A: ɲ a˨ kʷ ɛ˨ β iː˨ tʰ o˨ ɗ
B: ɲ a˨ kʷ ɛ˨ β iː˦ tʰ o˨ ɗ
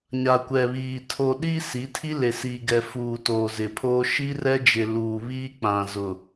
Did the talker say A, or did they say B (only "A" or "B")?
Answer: A